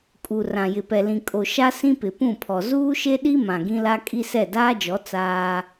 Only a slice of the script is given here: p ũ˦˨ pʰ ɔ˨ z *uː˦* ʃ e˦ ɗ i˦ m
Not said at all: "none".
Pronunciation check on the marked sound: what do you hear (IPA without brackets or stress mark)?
uː˦